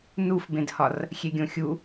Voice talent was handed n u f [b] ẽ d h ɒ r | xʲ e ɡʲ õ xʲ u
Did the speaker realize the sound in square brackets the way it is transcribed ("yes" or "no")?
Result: yes